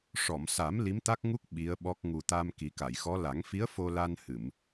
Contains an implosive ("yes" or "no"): yes